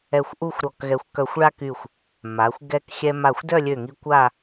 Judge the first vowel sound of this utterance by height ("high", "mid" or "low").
mid